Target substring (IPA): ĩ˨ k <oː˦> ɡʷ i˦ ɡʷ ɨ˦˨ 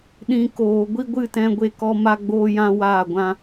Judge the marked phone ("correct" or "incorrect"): incorrect